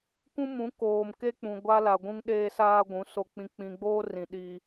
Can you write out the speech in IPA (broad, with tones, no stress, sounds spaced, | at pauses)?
kʷ ũ˦ m ũ˨˦ k oː˨ m k e˦ k͡p ũ˨ ɡʷ a˦ l a˨ ɡʷ ũ˦ ŋ ɗ eː˦ s aː˦ ɡʷ ũ˨˦ s o˨ k͡p ĩ˨ k͡p ĩ˨ ɡ͡b oː˦ r ĩ˨ ɗ iː˦